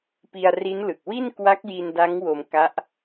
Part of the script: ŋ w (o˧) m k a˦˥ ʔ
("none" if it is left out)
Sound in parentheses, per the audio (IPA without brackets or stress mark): o˧